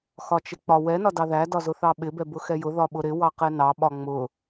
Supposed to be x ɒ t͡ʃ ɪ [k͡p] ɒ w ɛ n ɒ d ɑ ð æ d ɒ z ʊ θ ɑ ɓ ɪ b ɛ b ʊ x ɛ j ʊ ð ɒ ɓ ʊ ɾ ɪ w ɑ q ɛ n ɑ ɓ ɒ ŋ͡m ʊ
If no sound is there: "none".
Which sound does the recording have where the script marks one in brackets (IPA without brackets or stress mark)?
k͡p